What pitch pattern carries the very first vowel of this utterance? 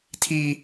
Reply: high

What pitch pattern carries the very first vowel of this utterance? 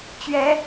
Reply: high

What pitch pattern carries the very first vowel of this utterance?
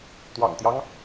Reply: low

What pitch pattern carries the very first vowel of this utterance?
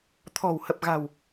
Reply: low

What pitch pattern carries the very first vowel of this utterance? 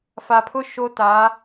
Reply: low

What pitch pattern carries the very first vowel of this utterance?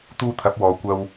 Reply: high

